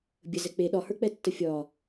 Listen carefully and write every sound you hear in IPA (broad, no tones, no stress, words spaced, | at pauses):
bʲə zɛk͡pe ɗɒhə˞k͡pɛtːə fʲɒ